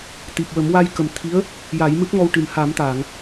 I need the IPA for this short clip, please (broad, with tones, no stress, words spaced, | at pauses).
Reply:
t̪i˨˩p̚wə˨˩˦m wa˧jkə˨˩m t̪ʰi˧˥ə̯ | ja˨˩˦jmɨ˦˥p̚ŋɔ˧w ʈɨ˨˩mha˨˩˦mt̪aː˨˩˨ŋ